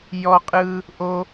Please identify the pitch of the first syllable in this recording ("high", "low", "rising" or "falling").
high